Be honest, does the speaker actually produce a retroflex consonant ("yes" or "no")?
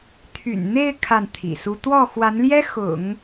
no